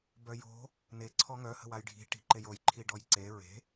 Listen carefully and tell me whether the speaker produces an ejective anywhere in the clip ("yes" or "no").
no